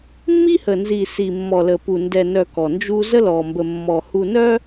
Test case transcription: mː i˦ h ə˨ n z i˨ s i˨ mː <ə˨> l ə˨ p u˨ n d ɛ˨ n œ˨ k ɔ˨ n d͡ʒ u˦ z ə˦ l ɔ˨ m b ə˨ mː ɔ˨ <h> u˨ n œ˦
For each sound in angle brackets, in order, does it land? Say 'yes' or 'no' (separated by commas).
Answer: no, yes